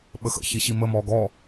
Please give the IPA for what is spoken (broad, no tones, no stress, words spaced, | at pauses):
ɓəxə̰ çiɕimə mɔɡɔ